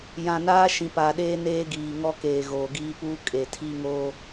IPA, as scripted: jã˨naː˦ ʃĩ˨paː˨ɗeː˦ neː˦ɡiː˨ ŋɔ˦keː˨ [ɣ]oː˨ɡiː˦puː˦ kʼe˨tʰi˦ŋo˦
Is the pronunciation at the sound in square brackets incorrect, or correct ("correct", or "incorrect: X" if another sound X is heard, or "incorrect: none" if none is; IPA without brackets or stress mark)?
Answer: correct